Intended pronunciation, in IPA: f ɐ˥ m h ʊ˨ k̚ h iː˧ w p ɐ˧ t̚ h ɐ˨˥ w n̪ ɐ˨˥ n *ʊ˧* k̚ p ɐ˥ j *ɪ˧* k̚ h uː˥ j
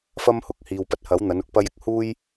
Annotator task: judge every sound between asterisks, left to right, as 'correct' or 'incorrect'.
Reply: correct, incorrect

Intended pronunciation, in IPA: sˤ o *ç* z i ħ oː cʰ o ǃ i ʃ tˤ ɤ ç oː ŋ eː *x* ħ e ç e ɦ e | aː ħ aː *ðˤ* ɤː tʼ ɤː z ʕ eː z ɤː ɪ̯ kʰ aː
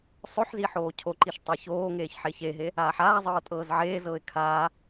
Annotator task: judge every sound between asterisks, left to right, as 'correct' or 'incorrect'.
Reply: incorrect, incorrect, incorrect

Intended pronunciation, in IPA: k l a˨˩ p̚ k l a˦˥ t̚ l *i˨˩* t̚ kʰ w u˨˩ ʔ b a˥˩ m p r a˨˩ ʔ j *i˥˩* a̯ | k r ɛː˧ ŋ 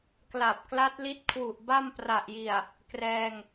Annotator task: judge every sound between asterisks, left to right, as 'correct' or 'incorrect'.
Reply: incorrect, incorrect

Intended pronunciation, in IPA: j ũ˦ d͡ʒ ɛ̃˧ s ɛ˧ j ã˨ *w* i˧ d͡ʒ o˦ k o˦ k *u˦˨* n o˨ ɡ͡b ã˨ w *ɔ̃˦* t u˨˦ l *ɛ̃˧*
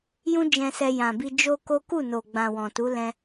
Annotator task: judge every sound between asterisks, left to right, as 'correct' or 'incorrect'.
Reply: incorrect, correct, incorrect, correct

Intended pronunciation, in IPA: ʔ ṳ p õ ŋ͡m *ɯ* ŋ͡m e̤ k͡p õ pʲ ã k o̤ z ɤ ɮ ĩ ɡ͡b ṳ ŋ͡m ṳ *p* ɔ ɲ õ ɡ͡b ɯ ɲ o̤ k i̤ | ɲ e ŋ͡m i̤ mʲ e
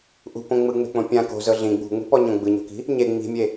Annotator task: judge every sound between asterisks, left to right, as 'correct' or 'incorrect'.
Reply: correct, correct

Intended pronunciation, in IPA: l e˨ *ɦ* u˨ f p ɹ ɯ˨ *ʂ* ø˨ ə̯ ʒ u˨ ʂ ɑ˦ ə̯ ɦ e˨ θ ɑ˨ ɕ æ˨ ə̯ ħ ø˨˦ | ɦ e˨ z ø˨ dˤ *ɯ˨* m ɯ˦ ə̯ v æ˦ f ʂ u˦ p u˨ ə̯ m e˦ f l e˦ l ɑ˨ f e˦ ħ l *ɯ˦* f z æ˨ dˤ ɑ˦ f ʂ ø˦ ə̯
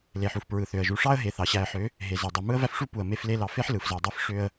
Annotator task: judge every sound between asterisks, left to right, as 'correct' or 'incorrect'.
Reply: incorrect, incorrect, correct, incorrect

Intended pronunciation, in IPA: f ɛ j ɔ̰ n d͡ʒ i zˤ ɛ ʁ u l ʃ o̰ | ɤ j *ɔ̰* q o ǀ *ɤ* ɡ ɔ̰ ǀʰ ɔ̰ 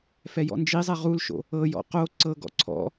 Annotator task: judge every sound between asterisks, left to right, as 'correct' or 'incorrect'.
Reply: correct, correct

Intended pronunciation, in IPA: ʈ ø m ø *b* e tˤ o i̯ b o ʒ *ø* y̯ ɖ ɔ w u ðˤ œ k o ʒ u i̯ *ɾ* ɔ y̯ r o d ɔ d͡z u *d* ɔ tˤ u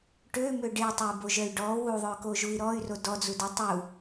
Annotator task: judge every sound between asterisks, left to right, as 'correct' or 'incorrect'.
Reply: incorrect, incorrect, correct, correct

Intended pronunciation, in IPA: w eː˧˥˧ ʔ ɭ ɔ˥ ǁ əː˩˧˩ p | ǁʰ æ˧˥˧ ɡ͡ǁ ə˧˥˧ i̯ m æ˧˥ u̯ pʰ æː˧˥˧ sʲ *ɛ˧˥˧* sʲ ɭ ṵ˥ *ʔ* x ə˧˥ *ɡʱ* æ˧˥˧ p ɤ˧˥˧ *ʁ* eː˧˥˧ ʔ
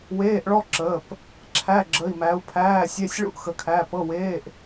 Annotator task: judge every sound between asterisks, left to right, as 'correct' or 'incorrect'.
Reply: correct, correct, incorrect, incorrect

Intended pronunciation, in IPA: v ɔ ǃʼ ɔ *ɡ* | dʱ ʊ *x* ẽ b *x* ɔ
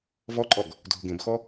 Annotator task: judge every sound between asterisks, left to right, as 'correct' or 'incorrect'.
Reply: correct, incorrect, correct

